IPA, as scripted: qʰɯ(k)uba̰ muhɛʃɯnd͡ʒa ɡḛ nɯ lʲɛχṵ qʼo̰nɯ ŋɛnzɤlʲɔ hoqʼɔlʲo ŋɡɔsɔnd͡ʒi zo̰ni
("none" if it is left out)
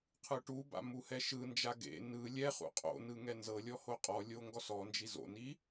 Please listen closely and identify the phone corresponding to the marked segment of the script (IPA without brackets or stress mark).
ʈ